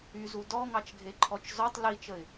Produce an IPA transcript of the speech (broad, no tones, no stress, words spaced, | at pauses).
yzu dɔŋɑt͡ʃɡʱeǃʰɔt͡ʃ zɔtˤ lit͡ʃəɪ̯